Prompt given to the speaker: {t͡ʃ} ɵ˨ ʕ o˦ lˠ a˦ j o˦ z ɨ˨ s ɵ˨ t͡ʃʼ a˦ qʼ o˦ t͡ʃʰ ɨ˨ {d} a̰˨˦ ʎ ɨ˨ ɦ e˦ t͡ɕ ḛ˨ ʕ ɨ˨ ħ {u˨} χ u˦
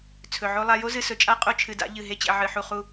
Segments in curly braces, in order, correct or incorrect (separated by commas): incorrect, correct, correct